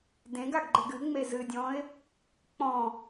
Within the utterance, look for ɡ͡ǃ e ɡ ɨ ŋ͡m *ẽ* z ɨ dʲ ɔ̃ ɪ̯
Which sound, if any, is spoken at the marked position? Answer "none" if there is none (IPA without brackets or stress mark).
e